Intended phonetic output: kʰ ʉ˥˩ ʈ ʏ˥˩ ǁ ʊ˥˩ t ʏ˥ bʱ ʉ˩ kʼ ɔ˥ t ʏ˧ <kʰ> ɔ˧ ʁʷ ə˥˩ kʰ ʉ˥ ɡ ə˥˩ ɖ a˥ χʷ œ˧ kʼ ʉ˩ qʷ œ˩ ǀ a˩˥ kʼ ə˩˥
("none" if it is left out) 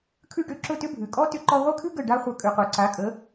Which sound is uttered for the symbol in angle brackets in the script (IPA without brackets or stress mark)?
ǃ